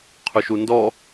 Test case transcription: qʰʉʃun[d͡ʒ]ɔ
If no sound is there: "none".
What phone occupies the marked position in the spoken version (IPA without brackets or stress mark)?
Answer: d